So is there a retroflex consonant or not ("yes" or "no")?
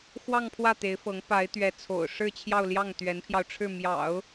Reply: yes